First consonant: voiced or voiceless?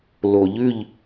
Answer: voiced